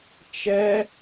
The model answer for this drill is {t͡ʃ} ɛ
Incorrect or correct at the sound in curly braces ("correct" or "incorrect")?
correct